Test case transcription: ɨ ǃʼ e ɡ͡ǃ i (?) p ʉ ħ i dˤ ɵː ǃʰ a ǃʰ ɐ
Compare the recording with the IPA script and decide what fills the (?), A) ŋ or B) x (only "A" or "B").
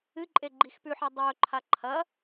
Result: B